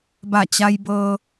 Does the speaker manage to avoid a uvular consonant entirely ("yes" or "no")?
yes